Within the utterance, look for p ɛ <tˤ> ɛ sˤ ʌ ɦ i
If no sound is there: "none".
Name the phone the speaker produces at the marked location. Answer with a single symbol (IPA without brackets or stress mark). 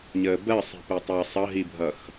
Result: tˤ